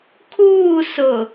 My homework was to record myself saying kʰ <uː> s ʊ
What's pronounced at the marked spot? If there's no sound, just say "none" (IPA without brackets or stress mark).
uː